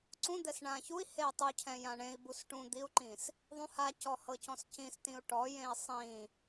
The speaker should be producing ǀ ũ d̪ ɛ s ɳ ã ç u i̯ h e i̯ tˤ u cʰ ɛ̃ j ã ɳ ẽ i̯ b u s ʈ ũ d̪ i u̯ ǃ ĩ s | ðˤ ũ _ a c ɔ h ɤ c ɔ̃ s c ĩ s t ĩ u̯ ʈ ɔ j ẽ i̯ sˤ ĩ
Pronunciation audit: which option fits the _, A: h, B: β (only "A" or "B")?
A